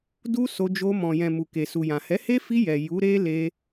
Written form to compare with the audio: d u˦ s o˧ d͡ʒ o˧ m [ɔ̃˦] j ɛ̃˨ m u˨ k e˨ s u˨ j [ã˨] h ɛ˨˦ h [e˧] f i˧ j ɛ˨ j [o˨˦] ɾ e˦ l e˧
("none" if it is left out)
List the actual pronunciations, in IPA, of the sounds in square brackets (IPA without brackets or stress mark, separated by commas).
ɔ̃˨, ã˨, e˦, u˨˦